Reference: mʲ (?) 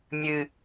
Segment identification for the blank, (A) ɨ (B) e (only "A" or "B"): A